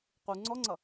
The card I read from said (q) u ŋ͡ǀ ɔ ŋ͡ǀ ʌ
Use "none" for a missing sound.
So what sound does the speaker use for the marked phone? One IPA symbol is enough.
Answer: q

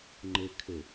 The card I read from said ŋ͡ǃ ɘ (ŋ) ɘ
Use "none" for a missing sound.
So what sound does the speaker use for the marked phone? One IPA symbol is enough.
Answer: kʰ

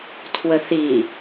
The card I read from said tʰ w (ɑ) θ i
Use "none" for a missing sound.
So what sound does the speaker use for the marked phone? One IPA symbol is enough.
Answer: ə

